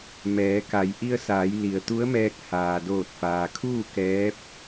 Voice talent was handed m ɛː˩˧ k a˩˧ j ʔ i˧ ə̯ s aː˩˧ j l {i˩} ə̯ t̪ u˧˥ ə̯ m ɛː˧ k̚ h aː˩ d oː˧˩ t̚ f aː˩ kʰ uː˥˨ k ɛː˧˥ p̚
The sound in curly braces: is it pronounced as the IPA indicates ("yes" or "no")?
yes